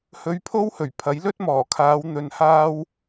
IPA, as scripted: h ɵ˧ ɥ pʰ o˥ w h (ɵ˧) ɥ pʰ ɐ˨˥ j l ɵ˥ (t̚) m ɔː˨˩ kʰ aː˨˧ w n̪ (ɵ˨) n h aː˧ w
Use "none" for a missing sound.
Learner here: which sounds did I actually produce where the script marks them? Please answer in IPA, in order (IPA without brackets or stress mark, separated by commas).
ɵ˨˩, t̚, ɵ˨